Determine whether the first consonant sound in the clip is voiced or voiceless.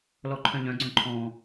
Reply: voiced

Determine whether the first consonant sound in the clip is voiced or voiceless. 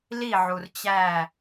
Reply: voiced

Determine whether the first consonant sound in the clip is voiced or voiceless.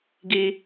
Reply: voiced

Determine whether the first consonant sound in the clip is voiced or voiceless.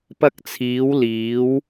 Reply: voiceless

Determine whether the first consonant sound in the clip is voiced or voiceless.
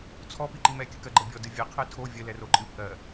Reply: voiceless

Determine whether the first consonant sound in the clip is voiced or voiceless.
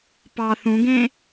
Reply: voiceless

